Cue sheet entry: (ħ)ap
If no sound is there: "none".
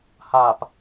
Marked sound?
h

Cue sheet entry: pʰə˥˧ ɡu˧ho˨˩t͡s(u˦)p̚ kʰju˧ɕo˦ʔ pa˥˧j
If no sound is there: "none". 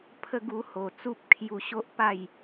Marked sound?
u˦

